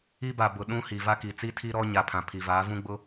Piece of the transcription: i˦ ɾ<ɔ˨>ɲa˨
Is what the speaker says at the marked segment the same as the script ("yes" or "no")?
no